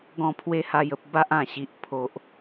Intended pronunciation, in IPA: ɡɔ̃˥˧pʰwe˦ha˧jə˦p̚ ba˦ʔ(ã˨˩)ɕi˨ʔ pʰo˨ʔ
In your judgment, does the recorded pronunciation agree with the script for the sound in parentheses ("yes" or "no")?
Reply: yes